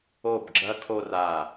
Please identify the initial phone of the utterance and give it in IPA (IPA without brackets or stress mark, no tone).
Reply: o